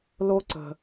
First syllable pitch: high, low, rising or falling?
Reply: high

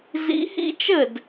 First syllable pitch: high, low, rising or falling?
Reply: rising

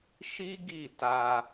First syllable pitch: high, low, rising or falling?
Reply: high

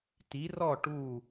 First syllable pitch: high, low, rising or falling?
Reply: rising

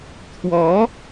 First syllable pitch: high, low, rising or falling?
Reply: rising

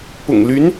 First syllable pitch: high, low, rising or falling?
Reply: low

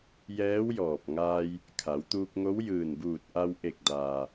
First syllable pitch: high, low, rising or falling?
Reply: rising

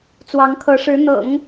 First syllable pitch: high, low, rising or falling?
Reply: rising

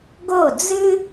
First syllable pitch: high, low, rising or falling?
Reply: falling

